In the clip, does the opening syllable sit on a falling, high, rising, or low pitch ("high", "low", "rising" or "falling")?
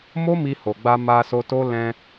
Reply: high